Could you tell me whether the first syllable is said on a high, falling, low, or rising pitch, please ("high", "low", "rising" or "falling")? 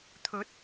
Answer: rising